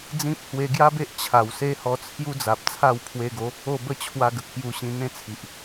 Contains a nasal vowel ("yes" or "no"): yes